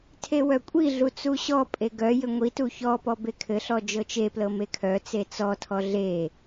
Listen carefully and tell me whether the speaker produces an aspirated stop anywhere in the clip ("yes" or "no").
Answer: yes